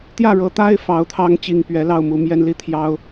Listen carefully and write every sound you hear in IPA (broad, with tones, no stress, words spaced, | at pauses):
t̪jä˥˨ɻɤ˨˦t̪a˦ɪ̯ fɑ˨˩ʊ̯ t̪ʰɑ˦ŋt͡ɕi˨˩ŋ pɥɛ˨˦ lɑ˥˨ʊ̯mu˨˩mjɛ˦nli˦ t̪ʰjɑ˦ʊ̯